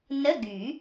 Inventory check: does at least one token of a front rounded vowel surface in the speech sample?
yes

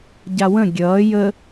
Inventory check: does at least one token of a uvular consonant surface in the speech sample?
no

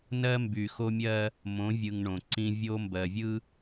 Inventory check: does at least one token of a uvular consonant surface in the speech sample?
no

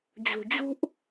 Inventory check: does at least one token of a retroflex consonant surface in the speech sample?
no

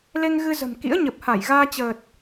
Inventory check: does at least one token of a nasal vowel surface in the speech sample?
no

